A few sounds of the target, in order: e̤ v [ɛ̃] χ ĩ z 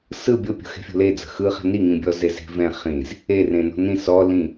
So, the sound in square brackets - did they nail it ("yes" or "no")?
yes